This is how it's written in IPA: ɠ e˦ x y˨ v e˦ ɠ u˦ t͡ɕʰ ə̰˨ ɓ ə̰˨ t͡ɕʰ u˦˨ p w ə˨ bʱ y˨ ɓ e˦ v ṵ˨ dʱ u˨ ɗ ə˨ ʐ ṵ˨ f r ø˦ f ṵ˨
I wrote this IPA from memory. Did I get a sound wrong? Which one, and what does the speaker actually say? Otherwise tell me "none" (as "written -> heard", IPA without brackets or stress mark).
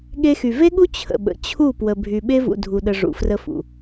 ø˦ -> ə˦